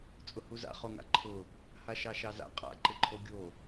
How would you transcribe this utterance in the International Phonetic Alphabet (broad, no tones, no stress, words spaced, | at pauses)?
t͡sʼʊhuza̰ χoŋa̰ǃʰʊ | haʃɑʃɑza̰ qʼa̰ ǃɪǃʰoɡʲo